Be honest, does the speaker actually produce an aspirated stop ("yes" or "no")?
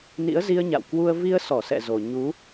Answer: no